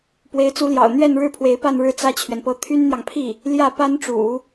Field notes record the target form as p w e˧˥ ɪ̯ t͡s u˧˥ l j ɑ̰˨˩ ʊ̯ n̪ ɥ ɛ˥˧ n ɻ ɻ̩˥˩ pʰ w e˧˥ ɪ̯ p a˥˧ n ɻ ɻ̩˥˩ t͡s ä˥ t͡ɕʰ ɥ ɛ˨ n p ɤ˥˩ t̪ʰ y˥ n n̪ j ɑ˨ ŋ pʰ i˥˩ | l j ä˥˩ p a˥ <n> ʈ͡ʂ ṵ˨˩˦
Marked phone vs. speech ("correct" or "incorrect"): correct